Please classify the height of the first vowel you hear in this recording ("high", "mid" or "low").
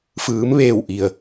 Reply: high